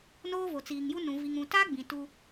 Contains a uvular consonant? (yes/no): no